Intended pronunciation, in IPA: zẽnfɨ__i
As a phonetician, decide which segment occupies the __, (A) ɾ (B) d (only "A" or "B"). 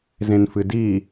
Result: B